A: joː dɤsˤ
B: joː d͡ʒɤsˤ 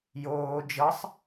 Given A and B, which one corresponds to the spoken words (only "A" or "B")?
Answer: B